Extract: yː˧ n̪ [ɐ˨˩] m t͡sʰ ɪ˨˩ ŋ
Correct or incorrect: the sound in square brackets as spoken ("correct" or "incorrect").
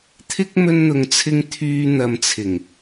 incorrect